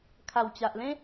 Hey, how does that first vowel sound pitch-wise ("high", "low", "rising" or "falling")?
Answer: low